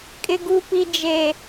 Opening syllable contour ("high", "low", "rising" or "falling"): high